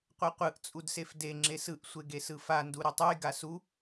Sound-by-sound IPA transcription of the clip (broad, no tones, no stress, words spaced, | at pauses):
qʷeqʷɯʔ t͡sʼudsefde ŋ͡ǁesɯʔ sʷeɡesɯfa nduɾɯtˤuj ɡasu